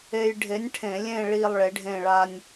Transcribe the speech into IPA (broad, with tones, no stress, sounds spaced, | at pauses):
e˦ j ɖʱ e˨˥ nʲ ʈʰ ẽ˧˩˧ lʲ ẽ˦˨ ɭ i˦˨ lˠ ɭ e˨˥ ɖʱ ẽ˦˨ ɭ a˦ nʲ